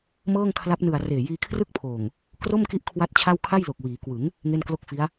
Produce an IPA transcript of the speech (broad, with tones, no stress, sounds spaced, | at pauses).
m ɤː˥˩ ŋ kʰ l a˦˥ p̚ n ɯ˨˩ a̯ r eː˨˩ j iː˧ kʰ r ɯ˥˩ k̚ pʰ oː˨˩ ŋ | k r o˥˩ m k i˦˥ ʔ kʰ w a˥˩ t̚ t͡ɕʰ a˥˩ w kʰ a˥˩ j l o˨˩ k̚ w iː˩˦ k w ɯ˩˦ ŋ | ŋ e˥˩ n k l o˥˩ k̚ f i˦˥ a̯